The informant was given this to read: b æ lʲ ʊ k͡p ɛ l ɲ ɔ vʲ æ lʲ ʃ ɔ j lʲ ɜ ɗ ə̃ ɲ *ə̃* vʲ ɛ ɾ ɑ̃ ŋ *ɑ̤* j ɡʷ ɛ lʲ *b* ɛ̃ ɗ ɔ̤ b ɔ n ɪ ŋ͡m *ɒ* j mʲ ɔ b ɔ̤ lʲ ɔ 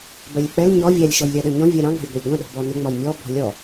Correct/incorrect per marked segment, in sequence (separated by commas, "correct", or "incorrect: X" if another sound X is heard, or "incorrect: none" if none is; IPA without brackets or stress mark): incorrect: ɔ̃, correct, incorrect: ɡʷ, correct